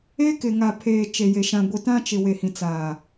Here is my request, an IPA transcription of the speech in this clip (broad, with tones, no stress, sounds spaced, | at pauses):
e˦ k ɪ˨ ŋ a˨ pʰ eː˨ t͡ʃ e˨ j e˨ ʃ ã˨ ɡʷ i˨ t ã˦ t͡ʃ ɪ˨ w e˨ h ĩ˨ t͡s aː˨